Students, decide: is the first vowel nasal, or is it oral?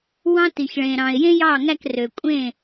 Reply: nasal